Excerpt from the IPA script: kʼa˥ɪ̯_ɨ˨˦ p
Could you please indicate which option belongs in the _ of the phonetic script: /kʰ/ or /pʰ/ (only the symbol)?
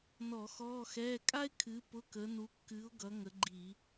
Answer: kʰ